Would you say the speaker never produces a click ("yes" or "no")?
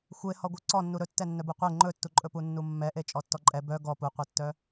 no